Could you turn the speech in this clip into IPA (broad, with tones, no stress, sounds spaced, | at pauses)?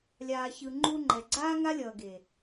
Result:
lʲ aː˨ ç ɯ˨ ŋ͡ǃ u˧ ŋ͡ǃ ɛ˨ ɡ͡ǀ aː˦ ŋ a˦ lʲ ʌː˨ ɡ e˨